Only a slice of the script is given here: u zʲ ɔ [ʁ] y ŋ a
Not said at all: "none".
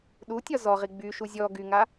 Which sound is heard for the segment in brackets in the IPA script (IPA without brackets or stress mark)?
ɡ